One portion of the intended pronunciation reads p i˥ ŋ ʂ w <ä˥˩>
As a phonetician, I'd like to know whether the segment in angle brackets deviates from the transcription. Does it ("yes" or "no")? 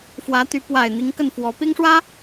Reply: yes